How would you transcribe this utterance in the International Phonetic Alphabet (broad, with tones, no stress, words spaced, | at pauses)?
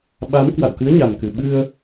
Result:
ɓa˨˦mkwa̰˧˨wkɨ˨˦ə̯ ɲa˨˩mkɨ˨˩ ɓɨ˧ə̯